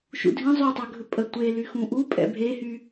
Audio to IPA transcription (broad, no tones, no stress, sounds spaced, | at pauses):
ʃ ṵ dʱ ĩ zˤ y tˤ e ɡʱ ɵ pʼ ə tʷ e l y x ũ ʔ u pʼ ɛ̰ bʱ e h y